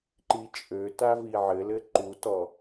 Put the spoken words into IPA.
ǃ i t͡ʃʼ ø t a v i ʕ ɘ l ɘ ǃ u t ɔ

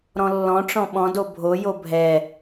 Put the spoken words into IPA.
ɾ ɔ̃ lː ɔ̃ ʈ͡ʂ ɔ̃ ɓ ɔ̃ d o bʱ o j o bʱ ɛ

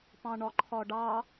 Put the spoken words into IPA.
p ɑ̃ ɳ ɒ ǃʰ ɒ ɖ ɑ

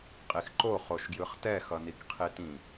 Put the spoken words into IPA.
qʼ i x ǃ o χ o ʃ ɡ j ɯ χ t ɛ x ʌ n i k qʰ i t ĩ

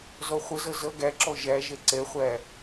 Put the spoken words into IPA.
z ɔ χʷ ə z ʌ z ʌ ɡ æ ǁ ɔ ʒ æ ʒ ɛ ǀ ɛ χʷ æ

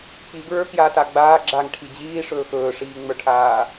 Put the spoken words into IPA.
k͡p i ɡ ɹ ə˞ k j aː t a ɡ͡b aː ɡ͡ǁ a ŋ ʈʰ i d͡ʑ iː ʂ ɵː x ɵː ʂ iː ŋ͡m ə˞ ʈʰ aː

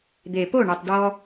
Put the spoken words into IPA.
d̪ e˨ p o˦˨ ɳ œ˨ tˤ ɖ ɔ˦

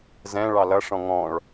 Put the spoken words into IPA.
z ɛ̃ ɭ ɑ l ʌ ʂ ɔ̃ ŋ ɔ̃ ɭ

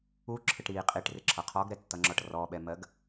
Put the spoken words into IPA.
u ǁʰ ɪ ʈ ɾ i qʼ i ʈ r ɪ ǁʰ ʌ qʰ ɔ ɡ ɾ ɛ tː ʌ ŋ͡ǁ ɒ ʈ r ɔ ɓ ɛ m ɜ ɡ

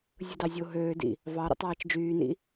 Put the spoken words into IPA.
zʲ ɯ d ɑ zʲ o ɦ øː d ḭ | v ɑ ɾ o̰ tˤ ɑː t͡ʃ d͡ʒ yː n ḭ

